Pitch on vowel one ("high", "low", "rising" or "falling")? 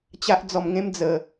high